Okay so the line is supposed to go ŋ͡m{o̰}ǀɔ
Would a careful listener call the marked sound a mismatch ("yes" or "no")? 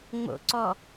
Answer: no